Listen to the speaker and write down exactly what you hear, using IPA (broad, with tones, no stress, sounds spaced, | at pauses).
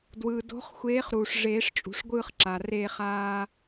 d w ɯː˩ d o̤˨˥ χ xʷ eː˨˥ χ ɾ uː˩ ʂ ʐ eː˨˩˦ ʂ t͡ʃʼ ṳ˩ ʂ ɡʷ ɯː˦˨ χ ǁ a˩ r eː˦˨ χ aː˦